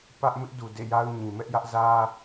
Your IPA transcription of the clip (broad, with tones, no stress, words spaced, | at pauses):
pä˦ʔ mɪ˦ʔdu˨ dḛ˦˨ja˦ʊ̯ɲĩ˨ mɛ˦ʔjä˦ʔ zä˦